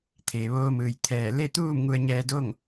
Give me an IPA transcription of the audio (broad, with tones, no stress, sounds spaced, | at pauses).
t̪ʰ eː˩ ʋ oː˧ m ɯː˩ j t̪ʰ ɛː˧˩ l e˥˨ t̪ uː˥˨ m ŋ u˧ ə̯ ɲ ɛː˧ d o˥˨ ŋ